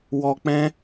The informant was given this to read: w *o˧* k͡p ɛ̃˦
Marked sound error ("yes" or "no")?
yes